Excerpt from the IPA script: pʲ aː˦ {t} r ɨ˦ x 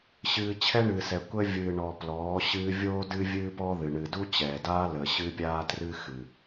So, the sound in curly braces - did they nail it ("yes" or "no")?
yes